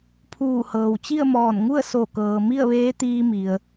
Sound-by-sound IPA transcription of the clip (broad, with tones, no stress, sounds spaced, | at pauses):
pʰ uː˧˩ h ɤː˩ w t͡ɕ i˥˨ ə̯ m ɔː˧˩ n ŋ u˥˨ ə̯ s o˧˩ k ɤː˩ m i˥˨ ə̯ ʋ eː˧˥ t̪ iː˧ m i˩ ə̯